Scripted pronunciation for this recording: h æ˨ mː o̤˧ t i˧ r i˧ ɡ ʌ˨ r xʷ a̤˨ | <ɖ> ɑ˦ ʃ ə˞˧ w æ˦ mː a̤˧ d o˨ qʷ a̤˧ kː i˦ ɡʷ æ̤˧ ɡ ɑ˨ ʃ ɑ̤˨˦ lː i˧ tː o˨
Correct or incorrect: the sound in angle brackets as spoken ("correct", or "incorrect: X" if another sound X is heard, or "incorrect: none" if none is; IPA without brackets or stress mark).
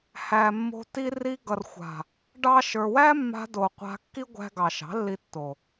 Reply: correct